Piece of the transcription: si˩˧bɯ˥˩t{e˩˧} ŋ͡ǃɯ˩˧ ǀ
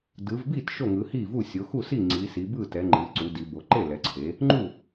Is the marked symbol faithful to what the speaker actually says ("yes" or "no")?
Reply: no